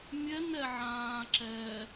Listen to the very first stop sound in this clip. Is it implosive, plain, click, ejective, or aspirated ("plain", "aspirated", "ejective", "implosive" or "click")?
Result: click